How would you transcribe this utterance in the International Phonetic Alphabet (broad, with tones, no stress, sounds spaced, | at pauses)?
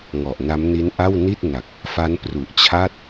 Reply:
ŋ ɔ˨˩ ʔ n a˦˥ m n i˦˥ n ʔ a˥˩ w n i˥˩ t̚ n a˨˩ k̚ | f a˦˥ n p r u˨˩ ʔ t͡ɕʰ a˥˩ t̚